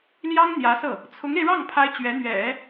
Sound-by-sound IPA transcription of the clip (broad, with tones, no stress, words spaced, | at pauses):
ljɑ˥ŋ n̪jä˧˥sɤ˥˩ | t͡sʰʊ˧˥ŋe˧ɪ̯ɻɑ˥˩ŋ pʰa˥ɪ̯t͡ɕɥɛ˧˥n̪ɥɛ̰˨˩˦